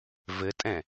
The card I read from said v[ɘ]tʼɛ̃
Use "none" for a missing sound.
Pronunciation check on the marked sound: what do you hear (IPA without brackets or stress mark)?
ɘ